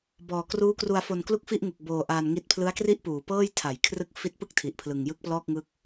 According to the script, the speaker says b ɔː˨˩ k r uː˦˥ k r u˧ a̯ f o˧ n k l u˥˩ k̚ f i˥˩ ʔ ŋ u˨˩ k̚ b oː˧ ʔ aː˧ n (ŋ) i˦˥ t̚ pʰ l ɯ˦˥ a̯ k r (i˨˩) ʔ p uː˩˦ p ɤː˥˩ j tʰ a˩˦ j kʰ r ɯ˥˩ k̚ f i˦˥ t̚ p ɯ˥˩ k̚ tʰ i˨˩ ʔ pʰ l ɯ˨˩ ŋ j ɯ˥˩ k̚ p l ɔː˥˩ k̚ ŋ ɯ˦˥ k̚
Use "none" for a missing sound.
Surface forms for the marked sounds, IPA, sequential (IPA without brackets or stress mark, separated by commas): ŋ, i˥˩